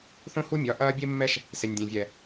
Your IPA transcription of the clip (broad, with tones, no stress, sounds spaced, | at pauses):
θ õ˦ h u˦ mʲ ɒ˨˦ ʔ ɐː˦ bʲ e˦ mː ɛ˦ ʃ | s e˨ nʲ dʲ ɛ̃˨ vʲ ɛ˨